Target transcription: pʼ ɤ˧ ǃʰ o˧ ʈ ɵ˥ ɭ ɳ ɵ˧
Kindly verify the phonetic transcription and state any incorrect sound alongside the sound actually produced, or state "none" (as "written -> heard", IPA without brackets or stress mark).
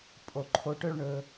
ɤ˧ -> o˧